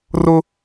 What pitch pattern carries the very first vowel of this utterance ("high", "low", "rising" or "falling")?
high